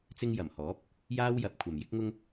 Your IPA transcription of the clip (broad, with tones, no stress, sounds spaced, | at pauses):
t͡s ɪ˧ ŋ j ɐ˨˩ m h ɔː˨˥ p̚ | j aː˥ w j ɐ˨˥ p̚ kʷʰ ɐ˨ m j ɪ˥ k̚ ŋ ʊ˥ ŋ